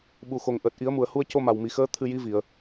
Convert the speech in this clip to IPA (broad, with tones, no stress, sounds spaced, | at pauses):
ɓ u˨˩ x o˨˩ ŋ ʔ əː˨˩ t̚ ʔ i˨˩˦ ə̯ m u˨˩˨ ə̯ h u˧ ə̯ c o˧ m a˨˩ w m i˨˩ x əː˧˥ t̪ʰ ɨ˧ j i˧˥ v i˨˩˨ ə̯